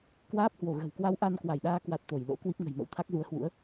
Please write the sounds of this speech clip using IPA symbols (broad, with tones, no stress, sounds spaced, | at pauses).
k w aː˦˥ p̚ h w o˧˩ ɣ ə̤˨˩ w k w a˧ w ʔ a˧ n k w a˧˩ j ɗ aː˧ k w a˨˩ t̚ t̪ o˧˩ j l o̰˧˥ k w i˦˥ p̚ ŋ ə̤˨˩ j m ə̰˧˥ w t̪ʰ a˦˥ k̚ z u˨˦ ə̯ h w ṵ˧˥ ə̯